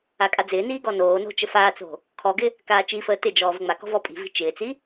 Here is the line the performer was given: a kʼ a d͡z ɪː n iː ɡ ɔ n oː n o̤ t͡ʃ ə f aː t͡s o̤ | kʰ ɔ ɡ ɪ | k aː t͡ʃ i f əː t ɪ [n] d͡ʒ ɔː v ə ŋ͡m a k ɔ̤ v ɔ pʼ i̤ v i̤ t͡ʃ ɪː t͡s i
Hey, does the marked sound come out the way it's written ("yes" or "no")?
no